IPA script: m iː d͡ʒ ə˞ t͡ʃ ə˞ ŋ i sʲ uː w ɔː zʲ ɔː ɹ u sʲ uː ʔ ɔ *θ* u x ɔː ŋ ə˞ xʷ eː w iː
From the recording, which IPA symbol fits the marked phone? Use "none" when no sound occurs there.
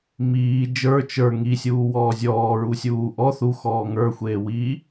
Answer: θ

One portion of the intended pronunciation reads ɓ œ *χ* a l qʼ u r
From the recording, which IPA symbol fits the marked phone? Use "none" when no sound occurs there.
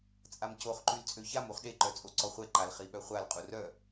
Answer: χʷ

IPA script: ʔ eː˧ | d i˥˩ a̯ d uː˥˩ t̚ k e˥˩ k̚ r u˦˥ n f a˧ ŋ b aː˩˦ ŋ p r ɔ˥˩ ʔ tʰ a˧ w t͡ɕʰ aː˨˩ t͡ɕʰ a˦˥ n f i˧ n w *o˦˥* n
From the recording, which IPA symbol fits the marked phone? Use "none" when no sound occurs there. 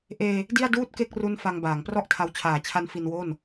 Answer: o˥˩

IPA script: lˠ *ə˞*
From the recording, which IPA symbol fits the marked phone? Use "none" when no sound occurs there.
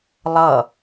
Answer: ʌ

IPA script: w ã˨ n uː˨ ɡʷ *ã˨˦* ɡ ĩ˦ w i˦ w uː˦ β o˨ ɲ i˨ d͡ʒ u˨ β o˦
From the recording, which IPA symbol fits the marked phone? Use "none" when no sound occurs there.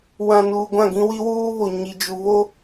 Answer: ã˦˨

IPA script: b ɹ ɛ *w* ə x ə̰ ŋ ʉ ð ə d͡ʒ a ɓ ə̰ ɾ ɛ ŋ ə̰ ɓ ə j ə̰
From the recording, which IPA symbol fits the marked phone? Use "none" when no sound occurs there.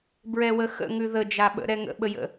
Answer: w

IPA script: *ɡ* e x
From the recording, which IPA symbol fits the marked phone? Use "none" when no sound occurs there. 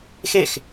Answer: x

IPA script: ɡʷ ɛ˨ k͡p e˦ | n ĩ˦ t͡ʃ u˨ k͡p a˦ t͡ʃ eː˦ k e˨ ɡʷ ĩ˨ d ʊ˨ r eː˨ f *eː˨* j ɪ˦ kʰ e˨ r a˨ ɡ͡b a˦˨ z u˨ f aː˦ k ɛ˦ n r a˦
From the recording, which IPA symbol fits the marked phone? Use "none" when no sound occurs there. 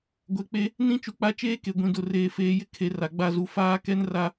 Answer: eː˨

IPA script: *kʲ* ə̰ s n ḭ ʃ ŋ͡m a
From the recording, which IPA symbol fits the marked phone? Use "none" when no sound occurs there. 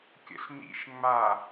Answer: kʲ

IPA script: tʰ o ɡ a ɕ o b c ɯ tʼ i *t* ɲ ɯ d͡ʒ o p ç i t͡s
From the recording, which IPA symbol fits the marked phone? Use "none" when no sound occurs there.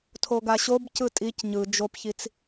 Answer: c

